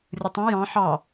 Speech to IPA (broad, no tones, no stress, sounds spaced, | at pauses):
rʲ ə tˤ ə̃ j ɑ̃ ħ ɑ